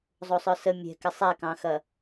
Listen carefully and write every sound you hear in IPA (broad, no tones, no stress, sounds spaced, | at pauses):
zˤ o sˤ œ s ə mʲ ɛ̤ k ɪ sˤ ɛ k ɑ̃ x ɐ